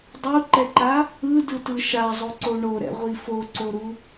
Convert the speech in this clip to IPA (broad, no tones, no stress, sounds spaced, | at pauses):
dˤ u ǃ ɛ ǃ a | ɯ d ɯ t ɯ ʃ a zˤ o ǀ o ɳ o ɾ ɛ̰ ʁʷ i f o ǀ o ɾ u